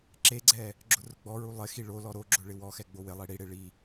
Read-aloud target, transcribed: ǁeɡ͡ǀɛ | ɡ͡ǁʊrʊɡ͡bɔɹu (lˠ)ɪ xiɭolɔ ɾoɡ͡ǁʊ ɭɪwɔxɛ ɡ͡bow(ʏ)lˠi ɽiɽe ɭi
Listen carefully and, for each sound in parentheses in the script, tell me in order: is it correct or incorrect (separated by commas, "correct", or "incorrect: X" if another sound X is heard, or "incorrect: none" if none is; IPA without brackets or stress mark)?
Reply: correct, incorrect: ɪ